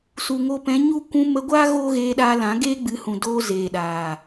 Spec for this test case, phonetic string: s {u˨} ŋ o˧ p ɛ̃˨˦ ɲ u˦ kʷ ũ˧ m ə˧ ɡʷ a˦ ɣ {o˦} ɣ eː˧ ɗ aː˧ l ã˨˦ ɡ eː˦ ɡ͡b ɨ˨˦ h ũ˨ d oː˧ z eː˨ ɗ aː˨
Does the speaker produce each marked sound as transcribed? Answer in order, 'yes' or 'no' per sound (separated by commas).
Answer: yes, no